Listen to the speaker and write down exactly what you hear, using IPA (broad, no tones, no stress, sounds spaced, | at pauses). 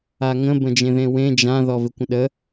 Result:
a ŋ ə̃ b ə̃ d͡ʒ ẽ ð ẽ w ẽ d͡ʒ ã ð ɔ v ɪ kʷ ə̃ ɗ ə